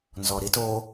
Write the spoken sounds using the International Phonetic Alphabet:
n z ɔ ɾ i t o

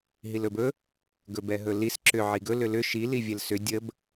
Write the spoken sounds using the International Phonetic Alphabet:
ɦ i l ɵ b ɵ | ɡ ɵ b ɛ ɦ ɵ l i s ǁ ʏ ʕ i ɡ ɵ l ʏ l ʏ ʃ i l i vʲ ɛ l s ʏ dʲ ə b

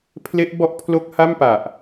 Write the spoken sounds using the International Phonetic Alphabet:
pʰ l e˦˥ ʔ b ɔ˦˥ ʔ pʰ l o˦˥ k̚ h a˥˩ m p a˨˩ ʔ

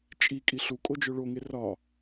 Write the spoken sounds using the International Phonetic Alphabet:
t͡ʃʼ i kʼ i ɬ u kʼ o d͡ʒ o ɭ o ŋ e r ɒ

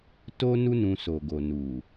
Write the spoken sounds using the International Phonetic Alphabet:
t o˦ n u˦ n ũ˧ s o˨ ɡ o˨ n u˨

